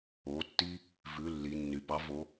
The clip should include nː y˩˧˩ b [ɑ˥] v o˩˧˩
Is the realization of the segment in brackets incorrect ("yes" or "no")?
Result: no